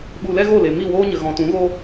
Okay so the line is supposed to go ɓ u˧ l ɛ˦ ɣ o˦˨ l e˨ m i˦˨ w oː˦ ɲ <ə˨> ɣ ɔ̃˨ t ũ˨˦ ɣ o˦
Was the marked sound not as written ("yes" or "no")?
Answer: no